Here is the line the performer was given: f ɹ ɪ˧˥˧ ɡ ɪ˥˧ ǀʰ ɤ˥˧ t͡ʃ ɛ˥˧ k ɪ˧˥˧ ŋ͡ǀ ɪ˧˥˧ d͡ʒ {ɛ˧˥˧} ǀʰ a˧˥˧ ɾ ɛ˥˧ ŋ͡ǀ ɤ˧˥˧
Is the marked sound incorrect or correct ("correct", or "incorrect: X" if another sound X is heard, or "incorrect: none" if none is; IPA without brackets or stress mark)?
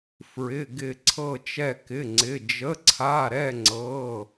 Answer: incorrect: ə˧˥˧